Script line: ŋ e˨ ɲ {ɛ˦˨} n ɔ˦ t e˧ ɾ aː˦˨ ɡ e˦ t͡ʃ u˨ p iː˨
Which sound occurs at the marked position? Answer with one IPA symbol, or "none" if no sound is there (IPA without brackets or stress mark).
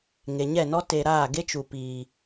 ɛ˦˨